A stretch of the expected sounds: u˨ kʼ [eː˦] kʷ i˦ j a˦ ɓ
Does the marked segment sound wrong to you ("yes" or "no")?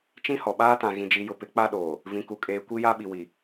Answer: yes